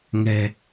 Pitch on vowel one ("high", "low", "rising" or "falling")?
low